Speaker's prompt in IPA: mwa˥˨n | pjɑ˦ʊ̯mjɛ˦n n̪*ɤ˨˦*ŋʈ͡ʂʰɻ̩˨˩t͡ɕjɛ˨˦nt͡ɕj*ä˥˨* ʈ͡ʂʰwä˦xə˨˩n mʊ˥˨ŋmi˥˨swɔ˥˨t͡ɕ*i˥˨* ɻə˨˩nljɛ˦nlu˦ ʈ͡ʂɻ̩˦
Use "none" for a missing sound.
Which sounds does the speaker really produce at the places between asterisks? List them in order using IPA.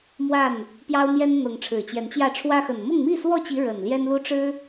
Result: ɤ˨˦, ä˥˨, i˨˦

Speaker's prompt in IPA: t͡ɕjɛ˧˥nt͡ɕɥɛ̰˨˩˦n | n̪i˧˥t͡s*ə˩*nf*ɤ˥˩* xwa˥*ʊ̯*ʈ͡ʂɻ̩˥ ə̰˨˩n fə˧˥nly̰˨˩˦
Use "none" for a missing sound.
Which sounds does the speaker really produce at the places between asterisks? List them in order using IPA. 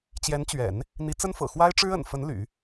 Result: ə˥, ɤ̰˨˩, ɪ̯

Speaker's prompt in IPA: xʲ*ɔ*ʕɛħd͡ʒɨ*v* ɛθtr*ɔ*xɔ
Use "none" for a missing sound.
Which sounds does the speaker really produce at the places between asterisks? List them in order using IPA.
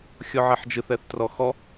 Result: ɔ, θ, ɔ

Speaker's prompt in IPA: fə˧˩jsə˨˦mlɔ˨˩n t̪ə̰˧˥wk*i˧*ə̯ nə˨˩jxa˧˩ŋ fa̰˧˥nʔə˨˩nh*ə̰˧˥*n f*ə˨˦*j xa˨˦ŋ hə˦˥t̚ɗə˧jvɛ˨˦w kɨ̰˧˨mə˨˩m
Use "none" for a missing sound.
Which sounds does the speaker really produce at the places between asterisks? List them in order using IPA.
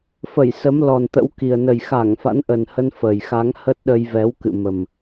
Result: i˨˩, ə˧, ə˨˩

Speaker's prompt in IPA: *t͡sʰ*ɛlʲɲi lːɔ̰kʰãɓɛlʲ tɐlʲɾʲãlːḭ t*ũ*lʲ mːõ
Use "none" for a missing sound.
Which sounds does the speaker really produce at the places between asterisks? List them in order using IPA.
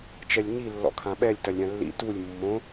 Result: t͡ʃ, u

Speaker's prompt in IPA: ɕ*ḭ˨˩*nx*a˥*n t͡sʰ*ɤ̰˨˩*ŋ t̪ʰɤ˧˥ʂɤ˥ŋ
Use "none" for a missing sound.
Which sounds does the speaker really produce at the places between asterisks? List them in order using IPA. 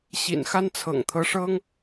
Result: ḭ˨˩, a˥, ɤ̰˨˩

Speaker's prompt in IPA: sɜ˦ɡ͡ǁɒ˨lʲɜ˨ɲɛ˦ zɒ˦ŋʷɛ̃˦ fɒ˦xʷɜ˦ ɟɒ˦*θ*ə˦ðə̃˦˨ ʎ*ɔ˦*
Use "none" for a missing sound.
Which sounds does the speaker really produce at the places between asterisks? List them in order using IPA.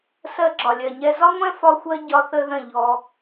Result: θ, ɔ˦

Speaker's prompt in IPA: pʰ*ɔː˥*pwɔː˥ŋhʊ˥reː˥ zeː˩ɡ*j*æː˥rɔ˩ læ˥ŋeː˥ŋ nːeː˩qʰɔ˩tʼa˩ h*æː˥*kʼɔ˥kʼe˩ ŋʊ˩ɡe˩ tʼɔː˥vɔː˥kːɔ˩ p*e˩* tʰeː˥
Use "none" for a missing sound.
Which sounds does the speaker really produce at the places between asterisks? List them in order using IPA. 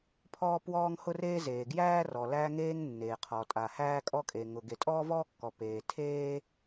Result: ɔː˥, j, æː˥, eː˩

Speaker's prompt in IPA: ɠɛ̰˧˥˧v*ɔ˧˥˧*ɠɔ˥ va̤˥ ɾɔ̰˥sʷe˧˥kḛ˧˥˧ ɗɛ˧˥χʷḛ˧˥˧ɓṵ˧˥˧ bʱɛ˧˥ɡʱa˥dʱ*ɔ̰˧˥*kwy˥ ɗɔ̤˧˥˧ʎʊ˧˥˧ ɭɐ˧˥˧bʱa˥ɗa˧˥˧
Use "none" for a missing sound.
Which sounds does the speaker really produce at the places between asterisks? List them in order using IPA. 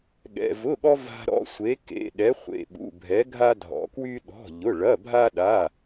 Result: ʊ˧˥˧, ɔ̰˧˥

